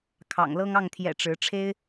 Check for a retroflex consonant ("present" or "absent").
present